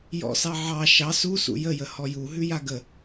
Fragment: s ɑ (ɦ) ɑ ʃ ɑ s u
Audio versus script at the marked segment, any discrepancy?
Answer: yes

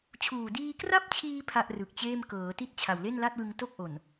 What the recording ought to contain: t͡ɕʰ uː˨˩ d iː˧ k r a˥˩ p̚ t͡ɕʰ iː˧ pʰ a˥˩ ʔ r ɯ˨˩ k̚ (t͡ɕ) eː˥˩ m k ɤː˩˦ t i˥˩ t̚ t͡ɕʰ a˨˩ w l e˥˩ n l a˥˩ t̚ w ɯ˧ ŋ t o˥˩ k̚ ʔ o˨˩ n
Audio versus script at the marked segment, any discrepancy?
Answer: no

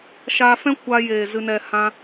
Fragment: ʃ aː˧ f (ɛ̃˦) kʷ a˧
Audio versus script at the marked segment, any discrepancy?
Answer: no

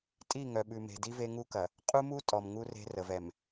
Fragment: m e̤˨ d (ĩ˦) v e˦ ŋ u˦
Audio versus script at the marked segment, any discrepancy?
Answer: yes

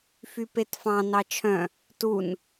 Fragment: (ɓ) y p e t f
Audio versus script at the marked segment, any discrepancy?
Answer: yes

